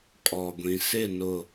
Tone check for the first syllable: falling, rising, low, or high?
low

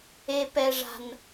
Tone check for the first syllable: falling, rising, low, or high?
low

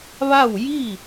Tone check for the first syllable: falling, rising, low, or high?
falling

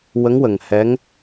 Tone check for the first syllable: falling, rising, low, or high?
rising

